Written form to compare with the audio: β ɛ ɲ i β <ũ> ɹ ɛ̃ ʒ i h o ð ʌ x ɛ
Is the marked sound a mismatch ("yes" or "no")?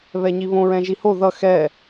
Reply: yes